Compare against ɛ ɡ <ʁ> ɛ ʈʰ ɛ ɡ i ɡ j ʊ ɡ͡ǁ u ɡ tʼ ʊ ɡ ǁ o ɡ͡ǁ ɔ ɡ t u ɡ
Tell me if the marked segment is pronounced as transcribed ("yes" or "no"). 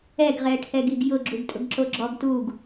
yes